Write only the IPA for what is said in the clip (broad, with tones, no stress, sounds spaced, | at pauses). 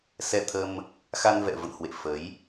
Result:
s ɛ˧ t̪ʰ ə˧ m | x a˧ n v ɛ̰˧˨ v ə̰˧˨ n h w ḛ˧˨ f ə˨˦ j